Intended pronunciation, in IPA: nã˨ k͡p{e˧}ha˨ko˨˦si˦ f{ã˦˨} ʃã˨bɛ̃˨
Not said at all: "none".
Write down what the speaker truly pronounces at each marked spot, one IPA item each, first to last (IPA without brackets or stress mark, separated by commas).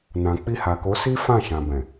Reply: i˧, ã˦˨